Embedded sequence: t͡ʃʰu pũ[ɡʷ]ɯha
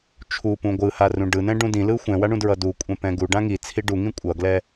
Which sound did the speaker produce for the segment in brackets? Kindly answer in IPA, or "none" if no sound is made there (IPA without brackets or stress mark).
ɡʷ